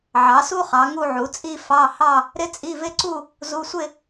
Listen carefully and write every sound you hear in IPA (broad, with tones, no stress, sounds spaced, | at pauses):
ʕ ɑ˩˥ s u˥ χ ɑ˩˥ ŋ u˥˧ ʕ u˩˥ t͡sʼ i˥˧ f ɑ˧˥˧ h ɑ˥˧ | ɾ ɪ˥ t͡sʼ i˧˥˧ v ɪ˥ ǀ u˥˧ | z u˧˥˧ sʷ ɪ˥˧